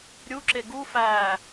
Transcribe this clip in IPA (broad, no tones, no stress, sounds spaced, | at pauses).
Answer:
ɾʲ u ǁ e ɡ u f æː